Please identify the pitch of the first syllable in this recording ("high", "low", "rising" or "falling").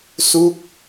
falling